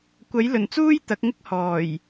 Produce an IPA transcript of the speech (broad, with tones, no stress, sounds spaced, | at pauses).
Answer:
kʷ ɐ˨˥ j l ɵ˨˩ n t͡s uː˥ j t̪ ɐ˨˥ k̚ ŋ ɪ˥ k̚ h ɔː˨˩ j